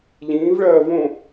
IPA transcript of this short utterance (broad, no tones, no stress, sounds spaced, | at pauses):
ʎ ĩː v ɭ ɜː v õ